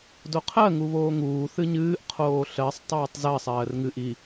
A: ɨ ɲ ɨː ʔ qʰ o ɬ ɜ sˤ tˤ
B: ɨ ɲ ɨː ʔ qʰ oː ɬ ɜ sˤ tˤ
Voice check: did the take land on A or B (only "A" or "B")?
B